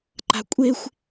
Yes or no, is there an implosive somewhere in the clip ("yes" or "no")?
no